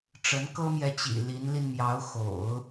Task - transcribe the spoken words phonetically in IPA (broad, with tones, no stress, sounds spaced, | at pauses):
ʈ͡ʂ ə˧˥ n k ɤ˥ m j ɛ˧˥ t͡ɕ ḭ˨˩ l i˧˥ n l i˧ n m j ɑ˧˥ ʊ̯ x o̰˨˩˦ ʊ̯